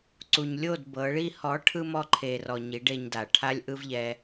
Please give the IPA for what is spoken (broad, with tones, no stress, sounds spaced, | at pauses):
ǀ u˨ ɲ lʲ o˦˨ d b ɤ˨˦ ɭ i˧ h ɔ˨˦ ʈʰ ɯ˧ m ɔ˧ ǃʰ e˨ r ɔ˨ ɲ i˨˦ ɖ e˧ ɲ d a˨ ʈʰ a˦ lʲ ʔ ɯ˦ v ʎ ɛ˧